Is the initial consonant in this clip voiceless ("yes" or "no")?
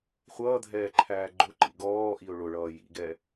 yes